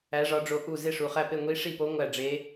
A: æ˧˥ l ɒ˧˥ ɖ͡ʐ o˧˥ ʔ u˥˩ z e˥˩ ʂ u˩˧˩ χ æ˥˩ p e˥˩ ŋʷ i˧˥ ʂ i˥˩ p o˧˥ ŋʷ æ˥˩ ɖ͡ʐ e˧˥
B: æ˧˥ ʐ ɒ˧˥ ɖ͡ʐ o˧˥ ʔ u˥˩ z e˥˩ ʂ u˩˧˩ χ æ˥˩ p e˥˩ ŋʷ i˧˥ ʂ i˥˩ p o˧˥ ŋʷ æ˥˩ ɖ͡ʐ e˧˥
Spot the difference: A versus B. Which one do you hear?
B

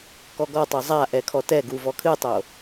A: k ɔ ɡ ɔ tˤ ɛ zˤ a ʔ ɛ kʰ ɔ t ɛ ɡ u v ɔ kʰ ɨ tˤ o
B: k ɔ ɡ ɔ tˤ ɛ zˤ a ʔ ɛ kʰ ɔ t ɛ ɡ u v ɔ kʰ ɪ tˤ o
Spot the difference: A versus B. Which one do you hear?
A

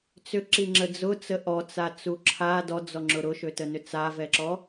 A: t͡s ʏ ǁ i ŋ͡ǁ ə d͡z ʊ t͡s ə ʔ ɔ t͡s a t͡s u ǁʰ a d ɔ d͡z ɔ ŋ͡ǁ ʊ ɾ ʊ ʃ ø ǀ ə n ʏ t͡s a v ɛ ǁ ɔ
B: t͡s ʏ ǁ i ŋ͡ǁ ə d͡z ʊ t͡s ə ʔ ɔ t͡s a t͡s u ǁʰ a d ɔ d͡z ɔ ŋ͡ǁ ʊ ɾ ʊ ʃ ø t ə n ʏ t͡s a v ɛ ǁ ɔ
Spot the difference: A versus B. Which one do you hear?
B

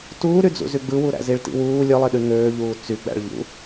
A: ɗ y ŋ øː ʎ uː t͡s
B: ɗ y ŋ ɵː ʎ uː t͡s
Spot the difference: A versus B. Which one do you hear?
A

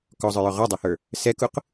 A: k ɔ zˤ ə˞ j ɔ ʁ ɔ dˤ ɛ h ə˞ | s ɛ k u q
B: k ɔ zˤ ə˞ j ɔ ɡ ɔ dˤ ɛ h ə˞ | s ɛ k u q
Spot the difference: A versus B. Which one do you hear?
A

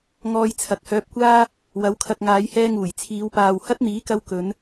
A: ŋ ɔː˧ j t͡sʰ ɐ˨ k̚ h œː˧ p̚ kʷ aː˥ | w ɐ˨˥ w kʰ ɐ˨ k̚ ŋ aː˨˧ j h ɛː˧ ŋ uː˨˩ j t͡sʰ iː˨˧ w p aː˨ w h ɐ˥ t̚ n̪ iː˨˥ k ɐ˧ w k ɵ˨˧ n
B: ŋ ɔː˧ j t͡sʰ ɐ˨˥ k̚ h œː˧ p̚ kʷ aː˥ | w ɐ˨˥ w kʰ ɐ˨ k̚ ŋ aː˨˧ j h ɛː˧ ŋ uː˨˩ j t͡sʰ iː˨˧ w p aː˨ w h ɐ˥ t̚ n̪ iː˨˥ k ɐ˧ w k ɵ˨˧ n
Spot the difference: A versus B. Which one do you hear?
A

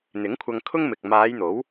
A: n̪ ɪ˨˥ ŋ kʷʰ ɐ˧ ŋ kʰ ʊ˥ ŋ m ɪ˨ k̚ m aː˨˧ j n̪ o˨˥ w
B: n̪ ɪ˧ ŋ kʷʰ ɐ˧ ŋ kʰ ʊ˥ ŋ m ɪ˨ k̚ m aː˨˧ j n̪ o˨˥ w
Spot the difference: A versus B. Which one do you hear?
A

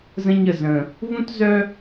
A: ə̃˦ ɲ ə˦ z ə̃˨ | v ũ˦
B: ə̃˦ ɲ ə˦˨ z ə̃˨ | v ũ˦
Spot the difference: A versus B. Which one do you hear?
B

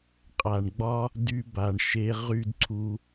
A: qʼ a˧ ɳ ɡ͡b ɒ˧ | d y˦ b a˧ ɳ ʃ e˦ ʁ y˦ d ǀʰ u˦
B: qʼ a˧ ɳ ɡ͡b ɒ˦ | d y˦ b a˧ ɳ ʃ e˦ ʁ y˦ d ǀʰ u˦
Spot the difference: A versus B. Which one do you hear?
B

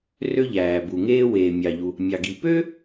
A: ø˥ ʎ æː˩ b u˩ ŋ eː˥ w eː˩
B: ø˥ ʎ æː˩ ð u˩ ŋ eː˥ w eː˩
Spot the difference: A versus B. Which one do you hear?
A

